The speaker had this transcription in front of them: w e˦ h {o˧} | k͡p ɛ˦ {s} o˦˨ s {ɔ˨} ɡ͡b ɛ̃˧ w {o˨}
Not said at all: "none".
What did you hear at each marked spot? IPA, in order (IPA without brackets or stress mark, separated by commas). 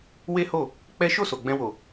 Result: o˦˨, ʃ, o˨, o˨